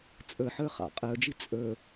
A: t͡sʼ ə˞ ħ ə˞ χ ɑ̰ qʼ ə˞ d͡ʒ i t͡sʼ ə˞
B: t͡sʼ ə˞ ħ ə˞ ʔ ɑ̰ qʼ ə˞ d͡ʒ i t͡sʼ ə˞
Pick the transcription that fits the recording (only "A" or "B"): A